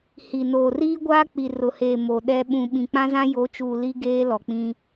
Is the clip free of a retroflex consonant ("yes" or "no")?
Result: yes